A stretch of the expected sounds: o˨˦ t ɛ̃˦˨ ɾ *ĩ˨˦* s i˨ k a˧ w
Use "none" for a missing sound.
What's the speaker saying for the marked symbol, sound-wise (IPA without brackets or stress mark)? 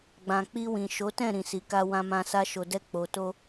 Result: ĩ˨